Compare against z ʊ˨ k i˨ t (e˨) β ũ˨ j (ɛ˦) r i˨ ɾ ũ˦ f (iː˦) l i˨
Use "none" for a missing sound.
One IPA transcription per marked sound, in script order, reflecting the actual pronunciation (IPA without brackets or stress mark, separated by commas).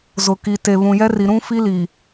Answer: e˨, ɛ˦, i˦